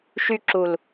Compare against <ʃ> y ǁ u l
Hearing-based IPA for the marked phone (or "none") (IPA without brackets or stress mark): ʃ